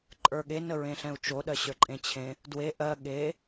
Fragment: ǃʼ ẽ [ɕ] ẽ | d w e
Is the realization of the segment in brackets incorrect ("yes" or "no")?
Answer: yes